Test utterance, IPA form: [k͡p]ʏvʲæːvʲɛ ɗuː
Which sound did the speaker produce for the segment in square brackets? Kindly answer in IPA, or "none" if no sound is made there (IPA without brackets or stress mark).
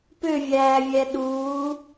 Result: p